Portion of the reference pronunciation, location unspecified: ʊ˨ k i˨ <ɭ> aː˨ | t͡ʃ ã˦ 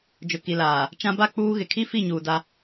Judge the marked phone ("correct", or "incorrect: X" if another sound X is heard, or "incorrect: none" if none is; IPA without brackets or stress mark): incorrect: l